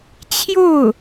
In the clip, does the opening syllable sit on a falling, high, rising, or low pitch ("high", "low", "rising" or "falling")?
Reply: falling